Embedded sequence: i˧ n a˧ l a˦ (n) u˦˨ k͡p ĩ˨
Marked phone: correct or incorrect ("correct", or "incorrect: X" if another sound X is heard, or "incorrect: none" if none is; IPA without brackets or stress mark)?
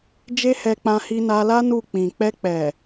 correct